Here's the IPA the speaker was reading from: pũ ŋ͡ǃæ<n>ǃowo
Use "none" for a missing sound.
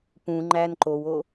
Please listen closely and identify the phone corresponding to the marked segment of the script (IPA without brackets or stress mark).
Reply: n